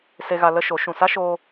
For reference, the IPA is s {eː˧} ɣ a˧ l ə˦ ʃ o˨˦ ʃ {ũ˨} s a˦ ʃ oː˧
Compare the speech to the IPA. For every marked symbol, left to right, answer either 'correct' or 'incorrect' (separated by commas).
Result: incorrect, correct